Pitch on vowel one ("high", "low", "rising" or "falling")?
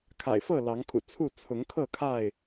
low